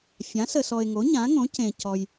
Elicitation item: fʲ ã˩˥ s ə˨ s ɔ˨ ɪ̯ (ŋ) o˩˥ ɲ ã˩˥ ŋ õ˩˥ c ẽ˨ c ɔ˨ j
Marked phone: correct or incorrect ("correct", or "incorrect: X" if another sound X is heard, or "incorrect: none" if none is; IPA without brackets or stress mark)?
correct